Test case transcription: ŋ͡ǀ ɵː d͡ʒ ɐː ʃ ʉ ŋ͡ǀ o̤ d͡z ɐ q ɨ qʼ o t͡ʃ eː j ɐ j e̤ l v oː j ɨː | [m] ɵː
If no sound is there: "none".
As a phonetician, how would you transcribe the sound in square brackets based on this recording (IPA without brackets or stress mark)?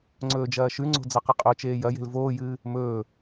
m